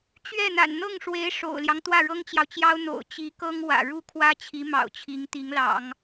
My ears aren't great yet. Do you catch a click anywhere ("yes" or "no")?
no